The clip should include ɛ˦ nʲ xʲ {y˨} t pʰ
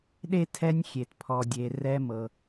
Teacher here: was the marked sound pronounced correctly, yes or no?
no